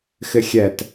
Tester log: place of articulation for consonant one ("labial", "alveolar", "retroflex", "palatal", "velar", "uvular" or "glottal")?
velar